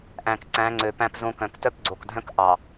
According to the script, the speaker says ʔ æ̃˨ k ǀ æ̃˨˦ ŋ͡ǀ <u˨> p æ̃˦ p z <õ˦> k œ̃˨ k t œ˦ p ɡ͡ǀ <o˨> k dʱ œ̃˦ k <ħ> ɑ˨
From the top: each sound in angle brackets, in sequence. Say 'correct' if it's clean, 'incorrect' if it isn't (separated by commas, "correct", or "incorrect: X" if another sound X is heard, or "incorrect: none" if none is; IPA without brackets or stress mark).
incorrect: ø˨, correct, correct, incorrect: ʔ